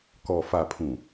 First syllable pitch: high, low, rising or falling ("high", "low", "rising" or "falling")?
low